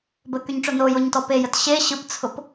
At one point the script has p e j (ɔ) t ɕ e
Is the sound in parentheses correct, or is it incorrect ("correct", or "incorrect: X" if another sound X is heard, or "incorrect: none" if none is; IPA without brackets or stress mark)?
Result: incorrect: ə